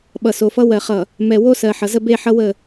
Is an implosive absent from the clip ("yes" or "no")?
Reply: no